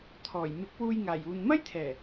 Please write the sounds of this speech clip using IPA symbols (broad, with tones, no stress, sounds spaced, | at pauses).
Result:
t̪ʰ ɔː˨˩ j m ɪ˨˥ k̚ w uː˧ j ŋ aː˨˩ j uː˨ n m ɐ˥ j t̪ʰ ɛː˨˩